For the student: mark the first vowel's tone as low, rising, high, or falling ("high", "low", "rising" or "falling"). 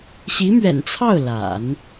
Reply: rising